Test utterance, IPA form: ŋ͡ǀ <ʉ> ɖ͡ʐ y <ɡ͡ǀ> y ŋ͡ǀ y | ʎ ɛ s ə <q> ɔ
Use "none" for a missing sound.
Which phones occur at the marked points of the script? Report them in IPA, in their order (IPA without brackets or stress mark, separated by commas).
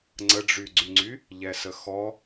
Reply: ə, ɡ͡ǀ, x